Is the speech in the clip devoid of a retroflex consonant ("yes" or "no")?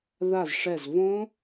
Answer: no